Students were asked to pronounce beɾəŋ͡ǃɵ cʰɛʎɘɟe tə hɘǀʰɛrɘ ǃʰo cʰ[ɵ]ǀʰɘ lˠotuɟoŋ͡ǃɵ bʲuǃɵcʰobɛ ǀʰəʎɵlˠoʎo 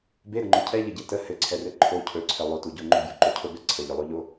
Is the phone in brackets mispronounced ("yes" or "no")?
no